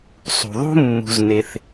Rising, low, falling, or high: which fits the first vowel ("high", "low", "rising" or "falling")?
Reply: low